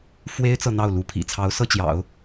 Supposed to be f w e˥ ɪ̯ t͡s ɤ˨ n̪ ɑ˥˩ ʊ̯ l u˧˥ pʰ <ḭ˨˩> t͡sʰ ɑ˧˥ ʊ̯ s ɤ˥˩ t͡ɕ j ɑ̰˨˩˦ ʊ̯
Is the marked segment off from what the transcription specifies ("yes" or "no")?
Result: no